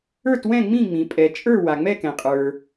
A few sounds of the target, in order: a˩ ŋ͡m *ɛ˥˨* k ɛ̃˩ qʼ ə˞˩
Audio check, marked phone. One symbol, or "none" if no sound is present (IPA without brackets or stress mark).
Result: ɛ˥˨